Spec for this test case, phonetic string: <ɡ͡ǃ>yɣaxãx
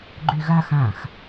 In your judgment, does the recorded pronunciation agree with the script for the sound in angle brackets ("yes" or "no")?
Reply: yes